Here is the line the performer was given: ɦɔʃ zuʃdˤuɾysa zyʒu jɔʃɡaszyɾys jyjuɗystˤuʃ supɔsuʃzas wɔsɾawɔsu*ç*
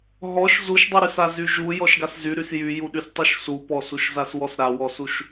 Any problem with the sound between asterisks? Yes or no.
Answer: yes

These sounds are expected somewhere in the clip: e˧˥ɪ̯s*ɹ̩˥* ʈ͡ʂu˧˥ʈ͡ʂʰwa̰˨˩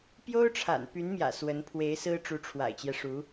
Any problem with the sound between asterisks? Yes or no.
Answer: no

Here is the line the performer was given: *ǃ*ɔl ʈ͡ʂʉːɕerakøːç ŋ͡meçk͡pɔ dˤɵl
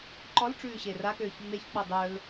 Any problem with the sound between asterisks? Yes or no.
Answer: no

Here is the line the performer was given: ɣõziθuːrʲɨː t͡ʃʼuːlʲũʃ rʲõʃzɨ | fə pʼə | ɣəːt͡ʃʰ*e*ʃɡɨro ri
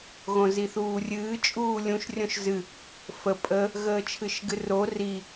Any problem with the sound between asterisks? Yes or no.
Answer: yes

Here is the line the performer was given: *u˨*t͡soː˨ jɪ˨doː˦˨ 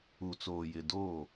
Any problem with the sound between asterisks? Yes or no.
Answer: no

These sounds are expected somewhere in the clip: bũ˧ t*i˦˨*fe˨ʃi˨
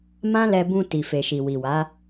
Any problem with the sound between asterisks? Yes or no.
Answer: yes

